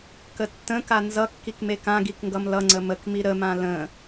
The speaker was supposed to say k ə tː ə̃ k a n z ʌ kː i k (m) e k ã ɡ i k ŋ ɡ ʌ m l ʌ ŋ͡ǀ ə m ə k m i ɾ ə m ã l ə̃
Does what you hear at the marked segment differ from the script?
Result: no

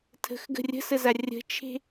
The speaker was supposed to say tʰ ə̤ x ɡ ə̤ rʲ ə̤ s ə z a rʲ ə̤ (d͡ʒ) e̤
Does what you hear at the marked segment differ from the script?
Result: yes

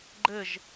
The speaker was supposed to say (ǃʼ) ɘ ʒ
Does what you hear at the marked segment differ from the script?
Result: yes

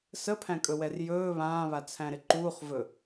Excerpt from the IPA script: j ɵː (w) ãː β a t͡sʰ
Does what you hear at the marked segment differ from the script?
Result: yes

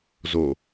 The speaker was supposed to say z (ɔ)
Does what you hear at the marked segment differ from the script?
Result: yes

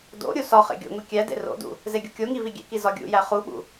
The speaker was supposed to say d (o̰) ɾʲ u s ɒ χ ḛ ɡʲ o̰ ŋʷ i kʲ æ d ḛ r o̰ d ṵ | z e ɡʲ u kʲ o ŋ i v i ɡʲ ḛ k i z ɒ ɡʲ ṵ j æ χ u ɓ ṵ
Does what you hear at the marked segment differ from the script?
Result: no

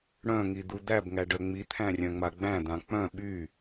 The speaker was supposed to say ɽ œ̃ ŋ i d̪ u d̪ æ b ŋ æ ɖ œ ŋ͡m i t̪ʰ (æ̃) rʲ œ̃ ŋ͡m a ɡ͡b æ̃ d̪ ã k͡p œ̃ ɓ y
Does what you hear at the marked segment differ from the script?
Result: no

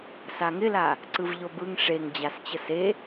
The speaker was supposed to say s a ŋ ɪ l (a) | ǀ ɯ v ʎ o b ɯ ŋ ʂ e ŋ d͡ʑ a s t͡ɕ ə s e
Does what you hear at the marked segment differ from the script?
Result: no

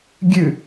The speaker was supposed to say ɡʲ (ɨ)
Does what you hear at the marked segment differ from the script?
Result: no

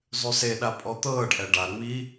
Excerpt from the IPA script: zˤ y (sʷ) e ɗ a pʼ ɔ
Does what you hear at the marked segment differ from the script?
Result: yes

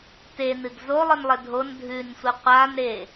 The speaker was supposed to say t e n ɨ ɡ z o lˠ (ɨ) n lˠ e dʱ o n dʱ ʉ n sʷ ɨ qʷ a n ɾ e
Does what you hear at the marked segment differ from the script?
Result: no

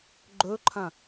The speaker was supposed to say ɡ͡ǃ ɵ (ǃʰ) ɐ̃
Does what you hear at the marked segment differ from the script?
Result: no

